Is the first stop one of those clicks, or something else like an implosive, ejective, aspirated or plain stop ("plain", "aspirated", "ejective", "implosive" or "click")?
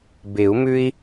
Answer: plain